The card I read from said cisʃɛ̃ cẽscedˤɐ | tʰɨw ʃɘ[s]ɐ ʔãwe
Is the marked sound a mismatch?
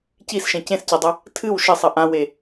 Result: yes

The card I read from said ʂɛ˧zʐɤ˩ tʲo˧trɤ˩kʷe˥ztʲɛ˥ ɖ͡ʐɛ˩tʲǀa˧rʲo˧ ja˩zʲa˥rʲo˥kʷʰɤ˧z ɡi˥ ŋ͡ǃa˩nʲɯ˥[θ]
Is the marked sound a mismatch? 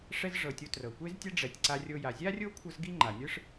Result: yes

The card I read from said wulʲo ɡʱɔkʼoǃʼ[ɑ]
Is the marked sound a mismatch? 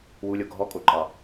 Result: no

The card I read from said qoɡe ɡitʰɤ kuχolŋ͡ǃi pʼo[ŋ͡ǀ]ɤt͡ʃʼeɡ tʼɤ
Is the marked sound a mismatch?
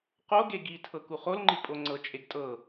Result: no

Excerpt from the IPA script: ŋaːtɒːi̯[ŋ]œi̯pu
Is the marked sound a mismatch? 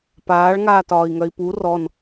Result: no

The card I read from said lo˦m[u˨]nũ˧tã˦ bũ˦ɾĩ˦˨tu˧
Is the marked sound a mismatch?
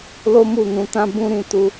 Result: yes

